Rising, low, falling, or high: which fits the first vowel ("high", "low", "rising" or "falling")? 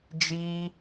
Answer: high